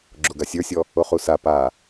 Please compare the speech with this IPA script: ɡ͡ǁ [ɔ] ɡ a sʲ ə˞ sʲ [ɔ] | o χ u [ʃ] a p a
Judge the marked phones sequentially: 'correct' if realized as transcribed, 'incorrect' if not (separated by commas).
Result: incorrect, correct, incorrect